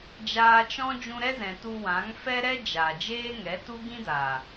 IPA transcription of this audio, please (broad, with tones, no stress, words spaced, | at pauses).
d͡ʒaː˧t͡ʃɔ̃˦ d͡ʒũ˧ɾɛ˦zɛ̃˨ tu˧wã˨˦ŋ fɛ˦ɾɛ˦ d͡ʒa˨ d͡ʒeː˦ŋɛ˨˦tu˦ ɡĩ˦daː˨